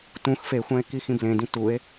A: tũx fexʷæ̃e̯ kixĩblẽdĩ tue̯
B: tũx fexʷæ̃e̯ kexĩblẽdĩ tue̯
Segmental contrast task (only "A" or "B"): A